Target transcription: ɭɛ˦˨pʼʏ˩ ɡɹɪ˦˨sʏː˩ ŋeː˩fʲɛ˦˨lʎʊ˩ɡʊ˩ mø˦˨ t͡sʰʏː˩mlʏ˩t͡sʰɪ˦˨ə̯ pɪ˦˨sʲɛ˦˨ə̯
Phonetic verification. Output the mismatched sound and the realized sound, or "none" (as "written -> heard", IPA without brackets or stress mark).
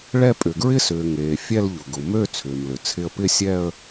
none